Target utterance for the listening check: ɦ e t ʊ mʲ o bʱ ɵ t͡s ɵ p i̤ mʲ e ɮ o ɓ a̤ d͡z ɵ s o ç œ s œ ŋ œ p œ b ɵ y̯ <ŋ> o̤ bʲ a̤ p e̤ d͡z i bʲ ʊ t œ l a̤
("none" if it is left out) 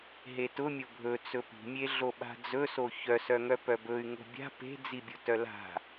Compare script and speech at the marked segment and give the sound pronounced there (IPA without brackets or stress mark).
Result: ŋ